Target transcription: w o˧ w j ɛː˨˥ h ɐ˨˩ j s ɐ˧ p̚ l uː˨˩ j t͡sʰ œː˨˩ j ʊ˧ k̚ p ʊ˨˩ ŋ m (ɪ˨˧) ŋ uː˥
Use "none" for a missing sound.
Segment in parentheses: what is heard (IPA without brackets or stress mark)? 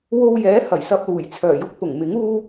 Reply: ɪ˨˥